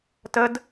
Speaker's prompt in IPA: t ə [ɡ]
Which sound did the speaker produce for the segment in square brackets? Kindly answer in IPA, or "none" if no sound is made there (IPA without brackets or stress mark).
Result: d